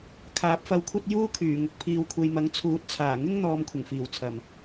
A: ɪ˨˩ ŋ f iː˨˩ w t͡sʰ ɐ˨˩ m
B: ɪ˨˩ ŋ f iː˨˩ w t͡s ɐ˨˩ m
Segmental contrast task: A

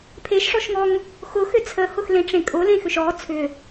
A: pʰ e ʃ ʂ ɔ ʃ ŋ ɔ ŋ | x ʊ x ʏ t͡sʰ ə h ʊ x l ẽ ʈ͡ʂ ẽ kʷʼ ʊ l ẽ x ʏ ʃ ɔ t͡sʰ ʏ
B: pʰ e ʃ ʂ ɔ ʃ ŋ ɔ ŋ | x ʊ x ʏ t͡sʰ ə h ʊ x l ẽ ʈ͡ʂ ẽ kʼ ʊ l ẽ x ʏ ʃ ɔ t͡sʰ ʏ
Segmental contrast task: B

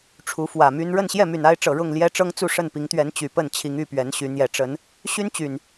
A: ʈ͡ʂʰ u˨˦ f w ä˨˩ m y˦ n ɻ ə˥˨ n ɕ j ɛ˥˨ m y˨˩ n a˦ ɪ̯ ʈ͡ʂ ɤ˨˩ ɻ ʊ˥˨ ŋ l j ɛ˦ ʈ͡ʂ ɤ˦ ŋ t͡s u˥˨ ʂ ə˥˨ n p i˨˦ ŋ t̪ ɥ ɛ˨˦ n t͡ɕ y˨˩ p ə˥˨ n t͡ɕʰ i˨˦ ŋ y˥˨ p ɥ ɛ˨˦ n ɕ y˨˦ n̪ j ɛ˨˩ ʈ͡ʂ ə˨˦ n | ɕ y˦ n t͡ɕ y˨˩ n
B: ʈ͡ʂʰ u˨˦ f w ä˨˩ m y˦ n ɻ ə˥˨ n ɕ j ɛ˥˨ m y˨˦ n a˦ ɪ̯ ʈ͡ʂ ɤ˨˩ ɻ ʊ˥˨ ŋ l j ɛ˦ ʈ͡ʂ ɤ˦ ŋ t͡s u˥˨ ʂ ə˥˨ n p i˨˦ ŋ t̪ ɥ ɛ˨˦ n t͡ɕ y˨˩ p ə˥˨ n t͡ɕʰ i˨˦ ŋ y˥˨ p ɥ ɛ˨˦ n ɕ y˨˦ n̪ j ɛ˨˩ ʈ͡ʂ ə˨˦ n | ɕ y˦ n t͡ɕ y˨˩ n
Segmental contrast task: A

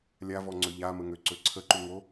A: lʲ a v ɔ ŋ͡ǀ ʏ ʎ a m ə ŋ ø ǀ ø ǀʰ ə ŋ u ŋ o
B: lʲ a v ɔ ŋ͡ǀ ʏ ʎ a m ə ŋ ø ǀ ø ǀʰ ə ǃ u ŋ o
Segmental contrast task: B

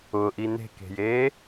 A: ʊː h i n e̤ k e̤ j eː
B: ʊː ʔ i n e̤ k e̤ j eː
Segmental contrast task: B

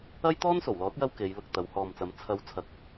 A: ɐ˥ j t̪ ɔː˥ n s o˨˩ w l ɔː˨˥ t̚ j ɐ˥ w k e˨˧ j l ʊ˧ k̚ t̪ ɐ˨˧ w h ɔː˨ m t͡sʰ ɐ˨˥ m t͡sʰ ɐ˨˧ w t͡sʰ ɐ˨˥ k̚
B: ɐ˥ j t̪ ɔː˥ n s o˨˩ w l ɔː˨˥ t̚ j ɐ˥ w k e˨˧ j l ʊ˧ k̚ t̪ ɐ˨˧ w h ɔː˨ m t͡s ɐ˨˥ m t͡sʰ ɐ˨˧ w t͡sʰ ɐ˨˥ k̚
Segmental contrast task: B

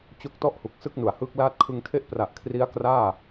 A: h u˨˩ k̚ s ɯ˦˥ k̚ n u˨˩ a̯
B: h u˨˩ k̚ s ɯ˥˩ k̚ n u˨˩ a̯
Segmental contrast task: B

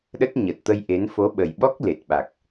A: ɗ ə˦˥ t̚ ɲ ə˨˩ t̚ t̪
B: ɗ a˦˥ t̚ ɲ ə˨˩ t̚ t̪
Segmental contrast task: A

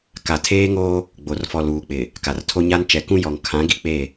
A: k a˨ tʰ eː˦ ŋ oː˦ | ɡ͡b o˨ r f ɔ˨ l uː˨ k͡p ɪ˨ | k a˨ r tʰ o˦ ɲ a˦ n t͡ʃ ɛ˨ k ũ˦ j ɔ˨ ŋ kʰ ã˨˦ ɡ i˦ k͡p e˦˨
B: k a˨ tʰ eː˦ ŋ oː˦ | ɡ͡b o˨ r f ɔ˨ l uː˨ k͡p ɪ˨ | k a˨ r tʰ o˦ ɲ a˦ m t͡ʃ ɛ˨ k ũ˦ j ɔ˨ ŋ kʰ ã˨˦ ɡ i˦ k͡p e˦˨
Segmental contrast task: A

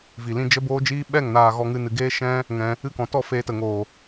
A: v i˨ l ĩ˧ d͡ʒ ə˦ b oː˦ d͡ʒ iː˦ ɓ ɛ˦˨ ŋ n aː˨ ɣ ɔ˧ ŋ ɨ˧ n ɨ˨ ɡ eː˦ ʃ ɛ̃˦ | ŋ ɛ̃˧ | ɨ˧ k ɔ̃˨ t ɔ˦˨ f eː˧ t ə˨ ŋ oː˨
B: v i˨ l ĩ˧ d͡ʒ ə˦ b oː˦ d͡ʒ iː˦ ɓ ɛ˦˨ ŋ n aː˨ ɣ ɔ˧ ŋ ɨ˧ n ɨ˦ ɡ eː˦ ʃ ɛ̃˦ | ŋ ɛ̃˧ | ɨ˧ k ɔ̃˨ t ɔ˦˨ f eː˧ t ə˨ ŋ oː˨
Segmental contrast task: A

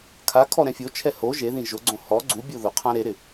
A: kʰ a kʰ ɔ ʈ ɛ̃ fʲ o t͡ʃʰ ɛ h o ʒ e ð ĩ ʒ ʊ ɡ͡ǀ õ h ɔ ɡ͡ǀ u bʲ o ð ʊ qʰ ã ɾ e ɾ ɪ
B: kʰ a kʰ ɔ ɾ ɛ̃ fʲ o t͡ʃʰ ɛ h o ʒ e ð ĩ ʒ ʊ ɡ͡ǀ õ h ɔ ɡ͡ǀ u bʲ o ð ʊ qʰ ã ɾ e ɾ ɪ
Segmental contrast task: B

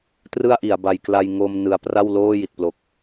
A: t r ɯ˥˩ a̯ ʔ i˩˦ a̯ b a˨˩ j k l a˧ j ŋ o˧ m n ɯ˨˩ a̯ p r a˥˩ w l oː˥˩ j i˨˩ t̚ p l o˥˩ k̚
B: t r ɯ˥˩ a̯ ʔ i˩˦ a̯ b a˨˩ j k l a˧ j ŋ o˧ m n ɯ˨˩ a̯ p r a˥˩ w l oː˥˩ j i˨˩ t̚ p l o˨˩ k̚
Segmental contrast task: B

